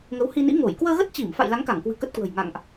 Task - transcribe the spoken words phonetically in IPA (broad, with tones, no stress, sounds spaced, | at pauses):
ŋ ə˨˦ w h i˧ n ḭ˧˥ ŋ o˧˩ j k w əː˧ ɣ ə˦˥ t̚ t͡ɕ i˧˩ m f a̰˧˨ j l a˨˦ ŋ k a˧˩ ŋ k w ɨ̤˨˩ k ə˦˥ t̚ k w ə̤˨˩ j ŋ a̰˧˨ ŋ ʔ